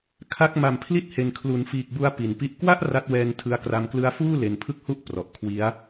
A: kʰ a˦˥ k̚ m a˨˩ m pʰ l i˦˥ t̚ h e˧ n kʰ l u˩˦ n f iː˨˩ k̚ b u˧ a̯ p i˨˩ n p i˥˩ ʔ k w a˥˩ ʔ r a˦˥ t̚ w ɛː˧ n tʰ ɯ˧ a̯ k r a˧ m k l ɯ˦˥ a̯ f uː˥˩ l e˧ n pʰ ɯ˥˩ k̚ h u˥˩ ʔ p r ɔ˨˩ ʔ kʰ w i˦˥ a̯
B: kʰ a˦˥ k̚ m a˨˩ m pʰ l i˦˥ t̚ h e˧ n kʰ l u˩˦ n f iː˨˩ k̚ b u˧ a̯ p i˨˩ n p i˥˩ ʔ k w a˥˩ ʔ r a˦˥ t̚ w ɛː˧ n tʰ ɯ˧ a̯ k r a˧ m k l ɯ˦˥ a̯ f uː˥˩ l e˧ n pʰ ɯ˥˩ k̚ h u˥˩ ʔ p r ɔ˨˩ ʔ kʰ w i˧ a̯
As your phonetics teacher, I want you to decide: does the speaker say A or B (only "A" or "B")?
A